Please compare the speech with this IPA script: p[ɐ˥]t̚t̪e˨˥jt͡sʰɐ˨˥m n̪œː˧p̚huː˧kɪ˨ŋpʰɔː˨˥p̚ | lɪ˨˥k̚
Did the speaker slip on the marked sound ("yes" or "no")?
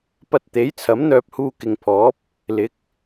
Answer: yes